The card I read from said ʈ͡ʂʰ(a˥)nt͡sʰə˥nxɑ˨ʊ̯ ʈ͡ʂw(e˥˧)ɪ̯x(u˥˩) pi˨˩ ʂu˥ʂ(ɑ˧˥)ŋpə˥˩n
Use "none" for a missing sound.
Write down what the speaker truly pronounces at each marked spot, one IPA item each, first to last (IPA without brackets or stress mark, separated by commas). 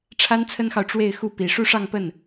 a˥, e˥˧, u˥˩, ɑ˥˧